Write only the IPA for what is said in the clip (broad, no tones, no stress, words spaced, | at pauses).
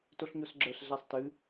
toɬɲosɡ͡ǁə˞ɬ ɮæsˤtɨ